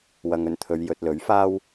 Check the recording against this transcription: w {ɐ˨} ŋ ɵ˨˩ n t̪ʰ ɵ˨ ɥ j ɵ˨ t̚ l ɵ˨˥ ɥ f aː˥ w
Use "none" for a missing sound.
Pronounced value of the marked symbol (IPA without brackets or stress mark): ɐ˨